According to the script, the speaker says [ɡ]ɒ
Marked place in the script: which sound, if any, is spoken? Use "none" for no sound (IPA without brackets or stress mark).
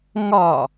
ŋ